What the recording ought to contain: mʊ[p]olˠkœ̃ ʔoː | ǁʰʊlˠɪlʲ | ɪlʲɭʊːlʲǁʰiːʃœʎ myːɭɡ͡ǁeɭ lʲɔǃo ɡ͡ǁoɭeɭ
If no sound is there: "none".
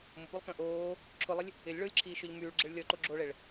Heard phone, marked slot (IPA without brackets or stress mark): p